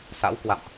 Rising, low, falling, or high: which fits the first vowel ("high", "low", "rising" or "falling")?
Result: rising